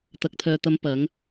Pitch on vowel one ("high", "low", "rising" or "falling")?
low